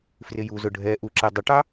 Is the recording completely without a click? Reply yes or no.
no